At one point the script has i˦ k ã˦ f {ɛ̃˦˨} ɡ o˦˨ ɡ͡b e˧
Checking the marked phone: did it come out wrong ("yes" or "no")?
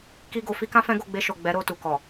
yes